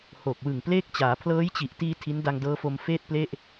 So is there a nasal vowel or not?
no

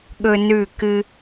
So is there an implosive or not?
yes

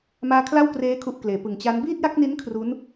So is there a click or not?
no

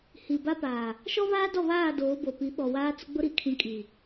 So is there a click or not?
no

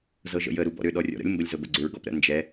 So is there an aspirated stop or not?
no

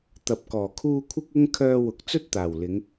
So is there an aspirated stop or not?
yes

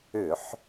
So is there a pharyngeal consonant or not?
yes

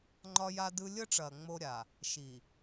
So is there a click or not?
yes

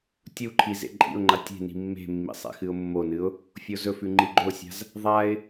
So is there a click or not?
yes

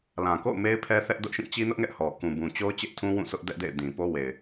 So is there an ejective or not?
no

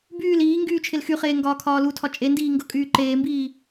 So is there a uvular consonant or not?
yes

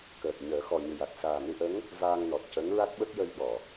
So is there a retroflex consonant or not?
no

